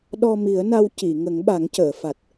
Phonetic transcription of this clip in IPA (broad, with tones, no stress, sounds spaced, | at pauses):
ɗ ɔ˧ m i˨˩˦ ə̯ n a˧ w c i˨˩˨ ŋ ə˨˩˦ ŋ ɓ a˨˩˦ ŋ c əː˨˩˨ f a˨˩ t̚